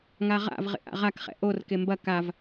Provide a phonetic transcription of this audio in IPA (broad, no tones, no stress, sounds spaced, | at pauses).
ŋ a ʁ a̰ v ʁ ḛ ʔ a̰ ʁ a k χ ɛ̰ ʔ o r k e m b ɐ k a v